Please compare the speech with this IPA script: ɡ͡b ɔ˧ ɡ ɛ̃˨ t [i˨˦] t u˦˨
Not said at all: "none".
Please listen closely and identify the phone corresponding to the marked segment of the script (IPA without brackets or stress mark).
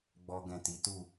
i˨˦